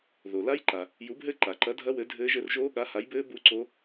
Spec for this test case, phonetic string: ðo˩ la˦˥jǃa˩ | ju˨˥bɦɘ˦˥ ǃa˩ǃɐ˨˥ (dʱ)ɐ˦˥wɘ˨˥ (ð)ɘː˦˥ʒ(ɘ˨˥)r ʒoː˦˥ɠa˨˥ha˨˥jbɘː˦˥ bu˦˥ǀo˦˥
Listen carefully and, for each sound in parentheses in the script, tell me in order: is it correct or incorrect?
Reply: correct, incorrect, correct

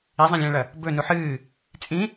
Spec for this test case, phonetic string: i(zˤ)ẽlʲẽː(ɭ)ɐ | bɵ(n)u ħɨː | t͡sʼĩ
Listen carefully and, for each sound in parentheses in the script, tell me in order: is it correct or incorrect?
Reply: correct, correct, correct

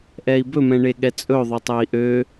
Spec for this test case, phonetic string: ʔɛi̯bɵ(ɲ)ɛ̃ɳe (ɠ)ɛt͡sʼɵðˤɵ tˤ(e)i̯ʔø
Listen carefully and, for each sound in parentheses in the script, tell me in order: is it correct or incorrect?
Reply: incorrect, correct, incorrect

